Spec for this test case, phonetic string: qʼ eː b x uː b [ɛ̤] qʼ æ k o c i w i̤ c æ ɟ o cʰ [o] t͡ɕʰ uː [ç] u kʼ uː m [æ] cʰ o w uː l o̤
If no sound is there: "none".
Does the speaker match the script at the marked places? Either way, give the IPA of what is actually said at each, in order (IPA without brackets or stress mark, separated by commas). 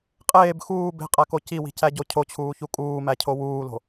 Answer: e̤, o, ç, æ